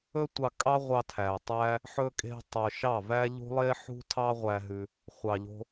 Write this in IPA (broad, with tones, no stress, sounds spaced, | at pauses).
ɵ˦ tʷ ɑ˧ kʼ ɑ˦ ʁʷ ɑ˧ tʰ æ˨ tˤ æ˦ | ħ ɵ˧ kʼ e̤˧ tˤ œ˨ ʃ ɑ˦˨ v æ˦ ʎ ṳ˦ lˠ e˦ ħ ṳ˦ tʰ ɑ˦ ʁʷ æ˧ ɦ ʉ˧ | χʷ ɑ˨ ʎ o̤˧